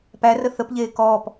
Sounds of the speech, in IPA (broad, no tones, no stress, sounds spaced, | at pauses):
p æ r ə θ ə p ʎ eː k ɔː p